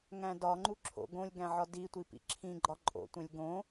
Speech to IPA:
ŋæ̃dɒŋ͡ǃu ǁʰo̰ ɡõlʲɡæ̃ʕɒ ditʷi pḭǁʰĩɡ͡ǃɒ ǃʼo̰tʷẽlʲ ɡõ

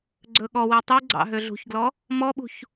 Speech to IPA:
ɡ͡ǀɵɠɔwi tˤiɡ͡ǀɑ̰ ɦøɮṳçɡlɔ | mɔɓṳç

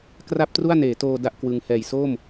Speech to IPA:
kra˥˩p̚tru˥˩a̯neː˩˦toː˧ da˥˩ʔkwɯ˧ŋ hɛː˨˩jsoː˥˩m

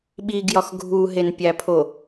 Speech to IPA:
ɓiɡjɒx ɡʱuɦenpʲæpʰo

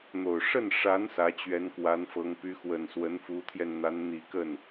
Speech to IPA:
n̪o˨˩ʊ̯ ʂə˥˩nʂa˧˥n sä˧˥t͡ɕɥɛ˧˥nkwa˧˥n fɤ˧˥ŋ py˧˥xwə˨˩nswə˧˥n fu˧˥t̪ʰjɛ˧n n̪a˧˥nn̪i˨˩kə˥˩n

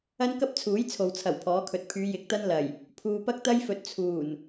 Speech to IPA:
ɐ˥nkɐ˥p̚t͡sʰuː˨˥j t͡sʰo˨wt͡sʰɐ˨˩wpʰɔː˨˥kʰɵ˨t̚ pʰyː˨˧jɪ˨˥k̚t̪ɐ˥n lɐ˨˩j | pʰuː˨pɐ˥k̚t̪ɐ˥jfɵ˨˥t̚ t͡sʰuː˨˩n

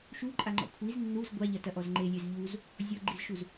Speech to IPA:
ʃuǃʼaŋ͡ǃɔ̰ kʷʰiz nːuz ɡʷaʎɐtɐʔɔz ŋ͡ǃelʲez ʎuz | zʲɔɡ͡ǃizʃuz

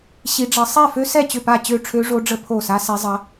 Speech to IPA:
ɕi˦˥ɖ͡ʐɐ˦˥ sˤɛ˥˨fø˦˥sɛ˥˨ t͡ɕʏ˥˨pa˥˨ t͡ɕø˥˨ʈ͡ʂʰø˦˥ʐo˦˥ɖ͡ʐə˦˥ pʰo˥˨sa˦˥sɛ˦˥zˤɐ˦˥

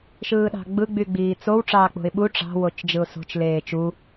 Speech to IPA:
ʃɯːɗɑ̤ɡ͡bɯ ɡ͡byɡ͡biːt͡sow ʈ͡ʂɑːk͡po̤ɪ̯ɓu ʈ͡ʂɑ̤ wot͡ʃd͡ʒɯʊ̯so̤t͡ʃ leːt͡ʃu

